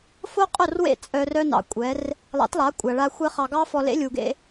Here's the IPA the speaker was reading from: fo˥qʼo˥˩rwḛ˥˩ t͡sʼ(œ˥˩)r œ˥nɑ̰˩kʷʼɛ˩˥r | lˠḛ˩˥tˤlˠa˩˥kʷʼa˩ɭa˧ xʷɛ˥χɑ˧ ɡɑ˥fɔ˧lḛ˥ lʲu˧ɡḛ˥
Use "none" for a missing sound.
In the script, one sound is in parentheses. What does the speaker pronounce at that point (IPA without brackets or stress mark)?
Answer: œ˧